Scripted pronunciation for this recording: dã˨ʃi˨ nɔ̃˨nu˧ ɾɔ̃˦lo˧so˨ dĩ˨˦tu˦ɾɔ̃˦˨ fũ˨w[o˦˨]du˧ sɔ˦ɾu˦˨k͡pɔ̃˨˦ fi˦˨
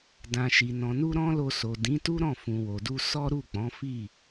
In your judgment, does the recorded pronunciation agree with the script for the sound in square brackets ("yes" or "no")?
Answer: no